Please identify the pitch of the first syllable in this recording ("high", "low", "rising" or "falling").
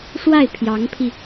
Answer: falling